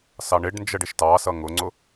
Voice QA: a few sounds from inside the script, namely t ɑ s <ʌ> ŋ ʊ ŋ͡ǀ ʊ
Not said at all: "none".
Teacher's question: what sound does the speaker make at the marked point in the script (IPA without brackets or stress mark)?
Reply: ʌ